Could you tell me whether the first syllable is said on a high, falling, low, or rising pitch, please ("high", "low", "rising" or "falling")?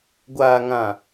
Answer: low